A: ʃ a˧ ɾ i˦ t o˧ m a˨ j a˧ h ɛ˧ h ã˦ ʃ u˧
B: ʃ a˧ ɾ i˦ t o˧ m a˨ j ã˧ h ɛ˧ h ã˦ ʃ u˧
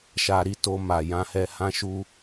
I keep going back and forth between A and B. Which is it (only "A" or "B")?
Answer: B